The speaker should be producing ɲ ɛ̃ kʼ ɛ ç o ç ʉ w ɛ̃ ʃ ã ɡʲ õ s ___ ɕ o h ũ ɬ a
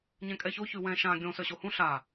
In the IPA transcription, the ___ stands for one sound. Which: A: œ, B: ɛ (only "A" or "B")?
A